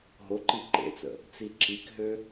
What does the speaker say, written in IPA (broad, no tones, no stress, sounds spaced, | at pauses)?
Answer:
ɦ o ǃ i ǃ ḛ t͡s ə̰ | t͡s i ǁ i k ɦ ø